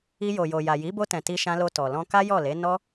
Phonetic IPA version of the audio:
i˧ j o˨ j o˨ j a˨ j i˨˦ b o˧ t ɛ̃˨ t i˧ ʃ ã˧ l o˧ t ɔ˨ l ɔ̃˧ k a˦ j ɔ˦˨ l e˨˦ n ɔ˦

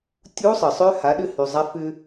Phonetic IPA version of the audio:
tʲ u˧˥ sˤ ə˩ sˤ ø˧˥ h a˩˧ ɗ ʏ˧ h y˩ zˤ a˧ f ʏ˧

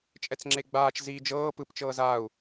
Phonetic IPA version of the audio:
t͡ʃʼ ɛ t͡s ŋ͡ǁ e ɡ͡b aː t͡ʃ z iː d͡ʒ ɤː p ɯ p t͡ʃ ɤː z aː u̯

